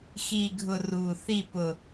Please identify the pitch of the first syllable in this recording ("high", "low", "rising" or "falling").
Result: falling